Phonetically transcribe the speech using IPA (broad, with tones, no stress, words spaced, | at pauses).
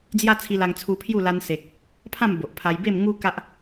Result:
d͡zja˦ t͡sʰi˧la˧ŋt͡sʰu˧pʰju˥˧ la˧nse˨k̚ | pʰã˥˧m bo˨ʔpʰa˧j be˥˧mŋu˦ ka˦ʔ